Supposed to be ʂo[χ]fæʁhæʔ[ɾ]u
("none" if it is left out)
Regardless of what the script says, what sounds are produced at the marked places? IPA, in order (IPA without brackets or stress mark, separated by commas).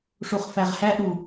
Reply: χ, ɾ